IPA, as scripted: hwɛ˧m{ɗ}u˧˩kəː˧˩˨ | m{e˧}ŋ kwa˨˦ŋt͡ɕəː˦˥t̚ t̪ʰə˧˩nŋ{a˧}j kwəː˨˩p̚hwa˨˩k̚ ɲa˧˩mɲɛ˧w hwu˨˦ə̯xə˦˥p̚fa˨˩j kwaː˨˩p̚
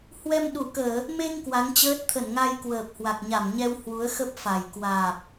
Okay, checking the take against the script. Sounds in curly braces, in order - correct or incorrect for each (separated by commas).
correct, correct, correct